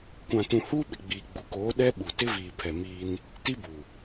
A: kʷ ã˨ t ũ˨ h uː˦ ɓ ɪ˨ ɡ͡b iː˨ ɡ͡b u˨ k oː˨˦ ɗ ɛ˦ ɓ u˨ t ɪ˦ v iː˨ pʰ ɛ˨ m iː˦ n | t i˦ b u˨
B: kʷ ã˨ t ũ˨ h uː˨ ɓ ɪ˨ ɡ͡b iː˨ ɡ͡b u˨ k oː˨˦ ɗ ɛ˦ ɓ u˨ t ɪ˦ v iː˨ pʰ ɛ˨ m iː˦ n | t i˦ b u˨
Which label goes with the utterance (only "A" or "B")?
A